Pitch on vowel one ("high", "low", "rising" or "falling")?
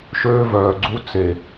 high